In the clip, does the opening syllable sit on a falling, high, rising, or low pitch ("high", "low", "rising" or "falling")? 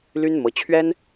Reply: high